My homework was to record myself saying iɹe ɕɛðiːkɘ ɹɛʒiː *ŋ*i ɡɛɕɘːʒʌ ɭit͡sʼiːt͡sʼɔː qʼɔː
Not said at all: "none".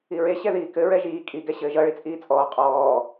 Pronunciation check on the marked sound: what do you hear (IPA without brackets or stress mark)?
kʼ